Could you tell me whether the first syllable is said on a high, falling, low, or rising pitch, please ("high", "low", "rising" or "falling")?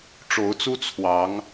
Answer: rising